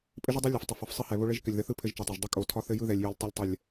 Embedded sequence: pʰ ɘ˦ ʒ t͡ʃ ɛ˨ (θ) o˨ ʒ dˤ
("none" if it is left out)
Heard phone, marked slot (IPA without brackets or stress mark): tˤ